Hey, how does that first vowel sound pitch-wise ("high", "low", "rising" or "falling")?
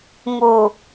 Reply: low